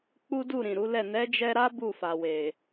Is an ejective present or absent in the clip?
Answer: absent